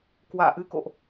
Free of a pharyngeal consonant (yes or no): yes